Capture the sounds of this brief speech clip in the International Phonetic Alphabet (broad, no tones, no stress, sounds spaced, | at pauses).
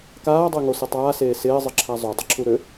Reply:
k aː dˤ e ŋ o s ɪ tˤ aː s eː s ɪː zˤ ɪ ǁʰ a zˤ o dˤ ɪ ǁʰ u ɾ ø